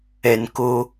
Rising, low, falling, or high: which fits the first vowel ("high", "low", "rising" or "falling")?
low